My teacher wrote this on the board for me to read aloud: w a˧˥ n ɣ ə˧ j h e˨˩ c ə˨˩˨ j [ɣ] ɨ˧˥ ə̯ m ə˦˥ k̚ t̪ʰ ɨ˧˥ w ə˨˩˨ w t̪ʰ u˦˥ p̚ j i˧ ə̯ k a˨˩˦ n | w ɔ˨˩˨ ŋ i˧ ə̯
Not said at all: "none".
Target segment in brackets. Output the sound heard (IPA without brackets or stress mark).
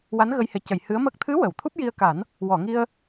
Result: h